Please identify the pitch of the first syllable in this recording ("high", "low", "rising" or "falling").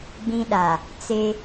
high